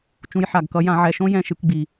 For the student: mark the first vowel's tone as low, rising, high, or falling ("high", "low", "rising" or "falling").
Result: rising